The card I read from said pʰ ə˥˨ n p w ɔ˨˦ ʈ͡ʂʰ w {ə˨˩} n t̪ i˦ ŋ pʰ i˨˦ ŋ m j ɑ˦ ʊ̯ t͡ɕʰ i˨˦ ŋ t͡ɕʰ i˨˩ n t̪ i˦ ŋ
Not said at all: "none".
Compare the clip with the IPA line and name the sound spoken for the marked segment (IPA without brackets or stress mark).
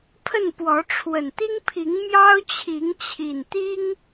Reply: ə˨˩